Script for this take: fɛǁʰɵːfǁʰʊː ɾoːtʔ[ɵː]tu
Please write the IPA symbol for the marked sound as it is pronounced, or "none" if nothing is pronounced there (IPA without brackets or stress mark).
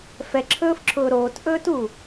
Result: ɵː